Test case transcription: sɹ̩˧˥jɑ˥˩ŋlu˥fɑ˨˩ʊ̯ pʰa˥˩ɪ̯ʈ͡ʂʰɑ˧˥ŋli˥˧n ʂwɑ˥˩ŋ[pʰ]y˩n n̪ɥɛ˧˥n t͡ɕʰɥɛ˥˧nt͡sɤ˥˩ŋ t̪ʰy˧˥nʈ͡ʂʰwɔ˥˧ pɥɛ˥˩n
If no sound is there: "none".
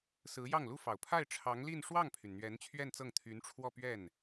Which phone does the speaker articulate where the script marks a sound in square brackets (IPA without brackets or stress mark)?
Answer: pʰ